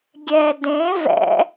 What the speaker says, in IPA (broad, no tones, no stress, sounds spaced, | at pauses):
ɡʲ ɛ d ẽ v ɛ̰